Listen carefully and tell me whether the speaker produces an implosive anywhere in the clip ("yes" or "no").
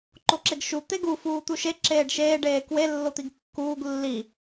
no